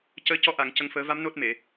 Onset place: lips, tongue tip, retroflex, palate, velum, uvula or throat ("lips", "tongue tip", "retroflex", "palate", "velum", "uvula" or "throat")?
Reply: palate